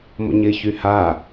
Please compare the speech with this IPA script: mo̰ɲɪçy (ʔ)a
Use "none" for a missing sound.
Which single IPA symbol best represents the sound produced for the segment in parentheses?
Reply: h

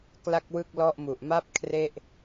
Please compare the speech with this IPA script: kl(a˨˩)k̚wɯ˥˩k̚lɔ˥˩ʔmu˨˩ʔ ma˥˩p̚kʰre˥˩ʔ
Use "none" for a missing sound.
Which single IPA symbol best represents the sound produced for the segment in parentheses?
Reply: a˥˩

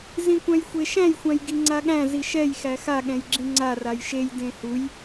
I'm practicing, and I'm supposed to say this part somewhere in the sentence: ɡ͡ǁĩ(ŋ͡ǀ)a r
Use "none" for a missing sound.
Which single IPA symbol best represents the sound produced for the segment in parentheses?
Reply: ŋ͡ǀ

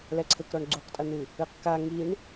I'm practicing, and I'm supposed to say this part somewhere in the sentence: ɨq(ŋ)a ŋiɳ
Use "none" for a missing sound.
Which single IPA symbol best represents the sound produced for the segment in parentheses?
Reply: k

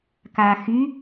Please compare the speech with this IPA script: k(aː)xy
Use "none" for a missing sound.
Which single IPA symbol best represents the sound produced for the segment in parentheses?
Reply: aː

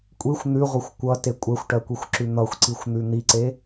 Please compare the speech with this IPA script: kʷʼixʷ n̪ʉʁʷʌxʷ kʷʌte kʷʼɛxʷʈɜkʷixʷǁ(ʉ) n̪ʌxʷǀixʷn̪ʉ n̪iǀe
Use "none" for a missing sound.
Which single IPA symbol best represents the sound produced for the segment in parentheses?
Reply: ʉ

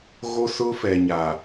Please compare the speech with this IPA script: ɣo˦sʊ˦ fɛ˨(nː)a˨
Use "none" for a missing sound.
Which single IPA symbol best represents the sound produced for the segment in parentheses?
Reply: ɲ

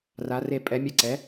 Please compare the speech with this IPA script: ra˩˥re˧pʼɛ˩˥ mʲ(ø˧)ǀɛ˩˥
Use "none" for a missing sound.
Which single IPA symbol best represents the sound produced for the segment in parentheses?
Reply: ɛ˧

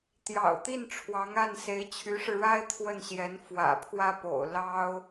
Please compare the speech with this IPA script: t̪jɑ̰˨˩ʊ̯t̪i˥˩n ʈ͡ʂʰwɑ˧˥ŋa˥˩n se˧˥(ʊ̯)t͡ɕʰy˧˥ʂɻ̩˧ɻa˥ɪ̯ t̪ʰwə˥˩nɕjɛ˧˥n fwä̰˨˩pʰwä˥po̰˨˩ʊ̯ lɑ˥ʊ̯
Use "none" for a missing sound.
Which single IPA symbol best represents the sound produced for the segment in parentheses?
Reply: ɪ̯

